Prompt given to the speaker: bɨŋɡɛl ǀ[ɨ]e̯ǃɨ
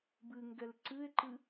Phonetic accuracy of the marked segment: correct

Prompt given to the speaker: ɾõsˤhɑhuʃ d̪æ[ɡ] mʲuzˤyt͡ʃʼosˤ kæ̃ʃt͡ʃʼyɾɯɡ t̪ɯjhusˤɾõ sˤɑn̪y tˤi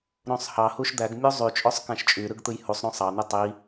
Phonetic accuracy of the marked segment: correct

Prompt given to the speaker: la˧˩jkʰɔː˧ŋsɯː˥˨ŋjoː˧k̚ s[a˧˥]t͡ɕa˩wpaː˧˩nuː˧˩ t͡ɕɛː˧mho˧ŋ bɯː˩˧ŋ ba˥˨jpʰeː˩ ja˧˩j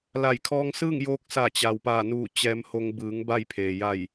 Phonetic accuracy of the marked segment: incorrect: a˧˩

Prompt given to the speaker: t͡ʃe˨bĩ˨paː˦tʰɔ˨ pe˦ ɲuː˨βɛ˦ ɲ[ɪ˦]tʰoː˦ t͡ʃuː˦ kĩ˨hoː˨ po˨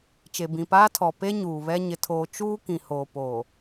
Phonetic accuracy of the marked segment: correct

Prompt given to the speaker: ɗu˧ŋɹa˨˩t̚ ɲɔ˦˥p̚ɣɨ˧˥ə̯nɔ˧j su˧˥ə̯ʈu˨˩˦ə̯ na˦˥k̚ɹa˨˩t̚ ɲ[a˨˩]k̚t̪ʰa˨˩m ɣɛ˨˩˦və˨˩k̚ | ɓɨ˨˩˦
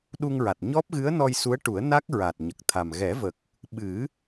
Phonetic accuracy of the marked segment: incorrect: ə˨˩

